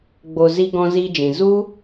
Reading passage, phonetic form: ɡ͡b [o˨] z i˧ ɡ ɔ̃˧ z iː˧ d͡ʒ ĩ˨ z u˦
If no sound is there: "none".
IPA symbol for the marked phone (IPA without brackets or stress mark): o˨